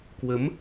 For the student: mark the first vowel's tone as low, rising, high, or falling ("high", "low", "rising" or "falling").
rising